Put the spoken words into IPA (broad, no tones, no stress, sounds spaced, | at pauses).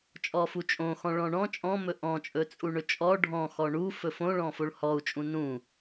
t͡ʃʼ ɔ f u t͡ʃʼ õ x ɔ̃ ɭ ɔ̃ ɳ ɔ̃ t͡ʃʼ ɔ̃ m ɵ ʔ ɔ̃ t͡ʃʼ ɵ t͡sʼ u ɳ ɵ t͡ʃʼ ɔ ɖʱ ɔ̃ x ɔ ɳ u f ɵ f õ ɭ ɔ̃ f o ɭ h ɔ u̯ t͡ʃʼ ũ n ũ